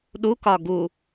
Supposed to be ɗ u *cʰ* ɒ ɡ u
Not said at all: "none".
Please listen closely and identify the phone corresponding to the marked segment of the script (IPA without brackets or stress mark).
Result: k